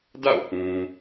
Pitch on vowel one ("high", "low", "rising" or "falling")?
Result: falling